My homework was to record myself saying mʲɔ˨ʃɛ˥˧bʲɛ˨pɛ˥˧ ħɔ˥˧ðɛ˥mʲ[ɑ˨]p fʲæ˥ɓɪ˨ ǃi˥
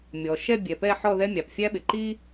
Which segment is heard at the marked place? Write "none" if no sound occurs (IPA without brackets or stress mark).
ɑ˨